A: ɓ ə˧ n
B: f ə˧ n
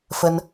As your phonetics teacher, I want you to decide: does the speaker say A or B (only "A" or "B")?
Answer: B